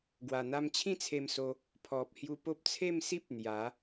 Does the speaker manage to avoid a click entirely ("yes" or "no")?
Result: yes